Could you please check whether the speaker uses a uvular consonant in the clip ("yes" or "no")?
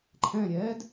no